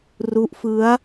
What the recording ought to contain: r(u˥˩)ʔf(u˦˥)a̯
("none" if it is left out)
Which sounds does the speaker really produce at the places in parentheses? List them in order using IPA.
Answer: u˦˥, ɯ˦˥

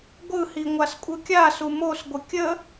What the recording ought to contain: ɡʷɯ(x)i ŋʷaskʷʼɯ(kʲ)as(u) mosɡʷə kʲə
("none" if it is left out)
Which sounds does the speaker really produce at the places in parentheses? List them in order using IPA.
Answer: h, kʲ, u

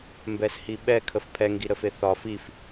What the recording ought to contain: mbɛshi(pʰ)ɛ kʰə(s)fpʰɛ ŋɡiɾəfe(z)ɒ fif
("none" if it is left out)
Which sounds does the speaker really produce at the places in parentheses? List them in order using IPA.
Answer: ɓ, none, θ

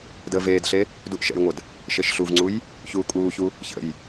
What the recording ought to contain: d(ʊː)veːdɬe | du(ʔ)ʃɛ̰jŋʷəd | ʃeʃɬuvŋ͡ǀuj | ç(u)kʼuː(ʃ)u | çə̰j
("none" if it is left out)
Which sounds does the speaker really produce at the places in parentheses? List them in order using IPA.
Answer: əː, ʔ, uː, ç

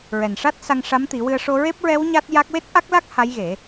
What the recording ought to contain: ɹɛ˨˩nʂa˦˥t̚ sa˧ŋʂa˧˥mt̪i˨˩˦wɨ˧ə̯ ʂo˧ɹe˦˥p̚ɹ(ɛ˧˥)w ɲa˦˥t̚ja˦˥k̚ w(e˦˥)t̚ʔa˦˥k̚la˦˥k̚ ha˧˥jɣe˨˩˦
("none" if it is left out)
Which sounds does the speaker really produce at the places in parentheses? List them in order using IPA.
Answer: ɛ˧˥, e˦˥

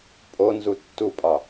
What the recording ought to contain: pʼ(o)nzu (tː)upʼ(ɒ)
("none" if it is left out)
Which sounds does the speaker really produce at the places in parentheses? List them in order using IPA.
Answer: o, tː, ɒ

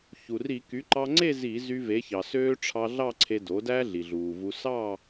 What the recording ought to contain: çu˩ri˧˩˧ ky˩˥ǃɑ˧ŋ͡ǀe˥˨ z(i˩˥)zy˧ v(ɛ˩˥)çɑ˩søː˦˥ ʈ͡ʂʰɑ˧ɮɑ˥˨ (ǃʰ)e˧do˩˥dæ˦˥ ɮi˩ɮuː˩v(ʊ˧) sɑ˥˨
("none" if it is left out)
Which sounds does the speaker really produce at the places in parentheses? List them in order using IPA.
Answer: i˧˩˧, e˩˥, ǀʰ, u˧

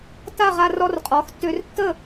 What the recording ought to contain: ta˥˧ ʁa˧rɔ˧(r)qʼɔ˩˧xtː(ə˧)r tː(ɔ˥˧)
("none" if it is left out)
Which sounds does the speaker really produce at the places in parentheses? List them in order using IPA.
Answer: r, ø˧, ə˥˧

